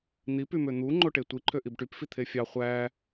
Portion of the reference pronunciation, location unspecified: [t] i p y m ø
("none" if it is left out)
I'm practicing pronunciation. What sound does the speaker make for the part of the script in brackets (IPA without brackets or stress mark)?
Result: n̪